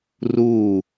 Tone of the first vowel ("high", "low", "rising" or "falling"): falling